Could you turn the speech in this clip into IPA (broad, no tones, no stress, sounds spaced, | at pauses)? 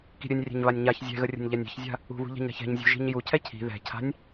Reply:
k i̤ ɾʲ ɘ nʲ rʲ ɛ̤ ɲ β a nʲ ɲ a ç zʲ ɛ̤ ɣ ə rʲ ə̤ nʲ ʎ a nʲ ɛ̤ ç zʲ a̤ | ṳ β ṳ ʎ a̤ ɲ ɾ a̤ ç ɛ̤ ɲ zʲ ṳ ʒ i̤ ɲ j u cʰ ɛ cʰ i̤ ð ɛ̤ cʰ a̤ nʲ